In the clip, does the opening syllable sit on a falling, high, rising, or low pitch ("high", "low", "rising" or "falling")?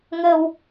low